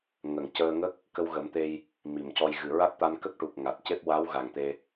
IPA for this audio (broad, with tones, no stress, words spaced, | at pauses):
ŋə˨˩ŋ cəː˧ ŋə˦˥k̚ | kə˧wɣə˨˩˦mt̪e˧j | mi˨˩mcɔ˧j ɣɨ˨˩ɹa˦˥t̚t̪a˧n kə˦˥k̚ʈu˨˩k̚ ŋa˨˩t̚ ce˦˥p̚wa˧˥wɣa˨˩ŋ t̪e˧